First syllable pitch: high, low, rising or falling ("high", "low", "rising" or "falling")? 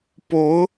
rising